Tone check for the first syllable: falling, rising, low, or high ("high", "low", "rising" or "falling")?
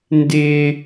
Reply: high